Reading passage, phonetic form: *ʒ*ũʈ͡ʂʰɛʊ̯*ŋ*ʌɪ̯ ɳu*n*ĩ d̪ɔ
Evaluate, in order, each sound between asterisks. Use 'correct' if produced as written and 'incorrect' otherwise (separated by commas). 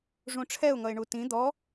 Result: incorrect, correct, incorrect